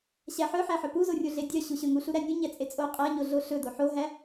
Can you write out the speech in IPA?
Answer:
ɕ æ ħ œ ħ æ ħ œ p u z o rʲ o ɮ e dʲ œ ɕ u ɕ ɵ ŋ u ɬ u ɾ æ nʲ ɵ ɲ æ t͡sʼ e t͡sʼ o qʼ æ ɲ o ɮ o ɬ ɵ d o ħ o ɦ æ

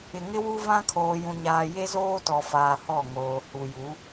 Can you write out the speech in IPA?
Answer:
ɪ˨ ŋ ɪ˦ w u˦ v ã˦ kʰ oː˨ j ũ˨ ɲ aː˨ j e˦ z oː˦ t ɔ˨ f aː˨ h ɔ˦˨ ŋ oː˨ h u˨ j u˨˦

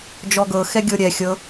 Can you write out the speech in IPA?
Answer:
d͡ʒ ɔ ɡ ɤ x ɛ ɡʲ ɤ ɾʲ ɛ xʲ ɤ

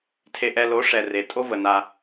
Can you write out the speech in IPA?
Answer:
tʰ e˨ ʔ ɛ˨ l o˨˦ ʂ ɛ˨ r e˨ tʼ o˦ v ə˨ n a˦

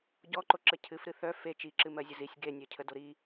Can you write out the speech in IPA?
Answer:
ɟ ɔ ǃ o ǁ ə cʰ ɨ f ɾ ɨ θ œ f e t͡ʃ i ǁ ɨ m ɜ zʲ ə z i sʲ ɡ e nʲ œ cʰ ə d o ɾ i

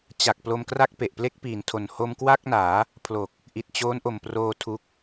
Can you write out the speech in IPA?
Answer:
t͡ɕ a˨˩ k̚ p l o˧ m k r a˥˩ k̚ p e˨˩ ʔ p l e˥˩ k̚ p iː˨˩ n tʰ o˨˩ n h o˧ m k w a˥˩ k̚ n aː˩˦ | pʰ l o˨˩ k̚ | ʔ i˨˩ t̚ t͡ɕ oː˦˥ n ʔ o˨˩ m p r oː˧ tʰ u˦˥ k̚

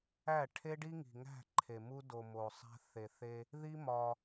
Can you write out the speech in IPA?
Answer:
æ˦˨ ʈʰ e˦ ɖ i˦ ŋ i̤˨ ŋ æ̤˦˨ ǃʰ e˨ m u˦ d o˨ m o˨ sˤ æ̤˦ θ e˨ θ e˦ | ð i˦ m ɒ˦

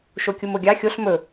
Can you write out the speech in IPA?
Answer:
ʃ o kʲ u m o ɡʲ ɑ xʲ o ɬ m ɵ

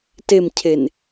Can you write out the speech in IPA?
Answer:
t e m cʰ e n

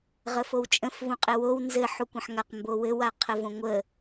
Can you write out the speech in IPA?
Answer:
ʁ ə f o w t͡ʃʼ ə̃ f v ũ qʼ ɘ w o w n z ɘ ħ u kʷ ə̃ ħ ŋ a q m b o w ɘ w a qʰ ə v õ ŋʷ ə

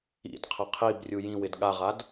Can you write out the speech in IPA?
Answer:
ḭ d qʰ ə qʰ i b rʲ u j ĩ w ɪ d ɠ a ʁ a d

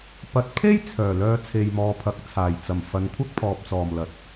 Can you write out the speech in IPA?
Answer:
p ɐ˨ t̚ pʰ e˥ j t͡sʰ œː˨˩ l œː˧ t͡sʰ e˨ j m ɔː˨ pʰ ɐ˨ k̚ t͡sʰ aː˨˩ j t͡s ɐ˨˩ m f ɐ˨˧ n kʷʰ ɐ˥ k̚ pʰ ɔː˨ p̚ t͡s ɔː˨˩ m l ɐ˨ t̚

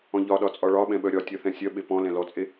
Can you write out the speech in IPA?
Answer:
ɔ̃ ʎ ɒ ɗ ɒ t͡sʼ ɒ ɭ ɒ ɓ ɛ̃ ɓ œ ɾʲ ɒ tʲ œ θ ɛ̃ sʲ œ ɓ e p ɔ̃ l ɛ̃ l ɔ t͡sʼ e

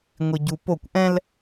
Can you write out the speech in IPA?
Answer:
ŋʷ i ɟ u p o kʷ ʔ ɛ̃ l

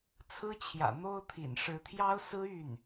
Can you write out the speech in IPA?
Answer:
t͡sʰ ɹ̩˥ t͡ɕʰ j ä̰˨˩ n̪ o˥ ʊ̯ t̪ʰ ḭ˨˩ n ʂ ɻ̩˧˥ t̪ʰ j ɑ˥ ʊ̯ s ɹ̩˥ y˥˩ n

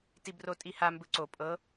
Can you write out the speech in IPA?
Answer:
t i b r o tʼ i h a m b ɯ ǀ o pʼ ɤ

